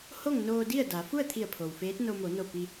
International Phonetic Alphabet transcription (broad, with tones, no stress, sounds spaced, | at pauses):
h o˥˨ ŋ n oː˧ d i˥˨ ə̯ d a˩˧ f u˥˨ ə̯ t̪ʰ i˧˩ ə̯ pʰ o˩ w f eː˧˥ t̚ n o˧ m o˩˧ n o˧˩ p i˧